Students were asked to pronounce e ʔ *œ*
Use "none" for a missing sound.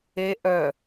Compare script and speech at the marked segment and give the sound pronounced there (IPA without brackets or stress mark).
œ